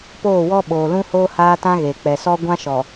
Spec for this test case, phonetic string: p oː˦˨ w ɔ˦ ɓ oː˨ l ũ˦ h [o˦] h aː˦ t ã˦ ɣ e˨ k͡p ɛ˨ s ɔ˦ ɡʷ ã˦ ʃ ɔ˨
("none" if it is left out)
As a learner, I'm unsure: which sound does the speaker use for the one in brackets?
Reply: oː˦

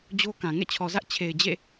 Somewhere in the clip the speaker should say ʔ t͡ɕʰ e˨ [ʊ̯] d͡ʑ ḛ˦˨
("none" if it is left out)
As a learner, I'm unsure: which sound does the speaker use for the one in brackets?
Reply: ɪ̯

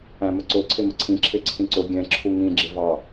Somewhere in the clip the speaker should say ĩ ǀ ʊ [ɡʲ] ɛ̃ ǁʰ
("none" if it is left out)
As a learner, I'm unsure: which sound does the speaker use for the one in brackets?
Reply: ɡʲ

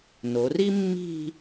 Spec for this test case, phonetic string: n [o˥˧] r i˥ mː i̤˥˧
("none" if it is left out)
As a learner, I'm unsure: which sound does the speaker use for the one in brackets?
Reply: o˩˧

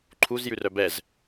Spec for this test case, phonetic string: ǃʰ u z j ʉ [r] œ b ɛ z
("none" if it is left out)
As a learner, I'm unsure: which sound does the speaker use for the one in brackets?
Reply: r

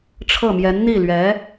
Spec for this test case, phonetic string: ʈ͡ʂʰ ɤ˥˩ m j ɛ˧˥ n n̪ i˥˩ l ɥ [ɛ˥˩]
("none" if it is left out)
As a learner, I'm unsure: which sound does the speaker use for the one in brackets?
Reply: ɛ˧˥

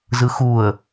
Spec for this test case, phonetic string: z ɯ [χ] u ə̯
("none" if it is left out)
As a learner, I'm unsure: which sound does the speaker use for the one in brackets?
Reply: x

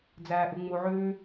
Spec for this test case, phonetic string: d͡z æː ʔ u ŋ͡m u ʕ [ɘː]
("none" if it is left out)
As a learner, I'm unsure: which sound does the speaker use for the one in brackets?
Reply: ʉː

